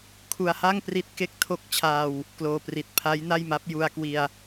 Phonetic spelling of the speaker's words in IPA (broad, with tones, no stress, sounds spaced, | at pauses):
kʰ u˧ a̯ h a˥˩ ŋ p r i˦˥ t̚ k e˥˩ k̚ tʰ o˦˥ k̚ t͡ɕʰ aː˧ w | k l oː˧ p r i˨˩ t̚ pʰ a˦˥ j n a˥˩ j m a˦˥ p̚ j u˧ a̯ k w i˧ a̯